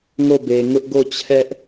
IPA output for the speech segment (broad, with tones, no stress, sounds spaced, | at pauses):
ŋ o˦˨ b e˨ ŋ ʊ˦ ʔ ɡ o˦˨ t͡ɕʰ ɛ˦ ʔ